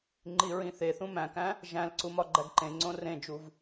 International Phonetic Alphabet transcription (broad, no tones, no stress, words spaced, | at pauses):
ŋ͡ǃiɹĩθeθũ mæ̃kæ̃ | ʒæ̃lǀu mɒɡ͡ǃæɡǃẽŋ͡ǀõ rẽd͡ʒuv